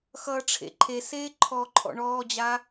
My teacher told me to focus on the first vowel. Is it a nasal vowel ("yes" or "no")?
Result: no